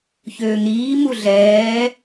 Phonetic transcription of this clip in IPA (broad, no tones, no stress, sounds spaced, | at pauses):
ç øː ŋ ɾ iː m u ɮ ɛː